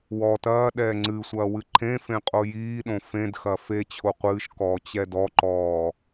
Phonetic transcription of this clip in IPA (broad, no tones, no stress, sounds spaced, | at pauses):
w ɔ t ɐː ɗ ɛː ŋ͡ǀ ɨ sʷ ɐː w ɨ ǃʰ ẽ f ẽ qʼ o j iː ɗ õ f ẽ d x ɐ f e t͡ɕʰ o qʷ ɨː ʃ k ɔː t͡ɕ ɛ d ɔ ǃ ɔː